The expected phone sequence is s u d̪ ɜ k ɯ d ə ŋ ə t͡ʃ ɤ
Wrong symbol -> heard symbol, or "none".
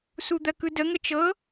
none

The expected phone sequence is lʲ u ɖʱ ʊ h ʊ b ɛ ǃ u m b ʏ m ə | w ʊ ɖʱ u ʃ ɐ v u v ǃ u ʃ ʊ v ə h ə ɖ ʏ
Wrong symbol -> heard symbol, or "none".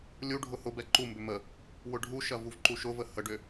none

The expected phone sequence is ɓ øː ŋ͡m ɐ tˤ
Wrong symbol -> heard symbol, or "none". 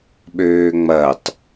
none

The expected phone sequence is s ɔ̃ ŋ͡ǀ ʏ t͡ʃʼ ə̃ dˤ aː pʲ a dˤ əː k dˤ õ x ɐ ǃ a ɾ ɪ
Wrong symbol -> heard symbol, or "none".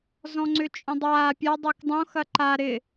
s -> z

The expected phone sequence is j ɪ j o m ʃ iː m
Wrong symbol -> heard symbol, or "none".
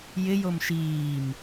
none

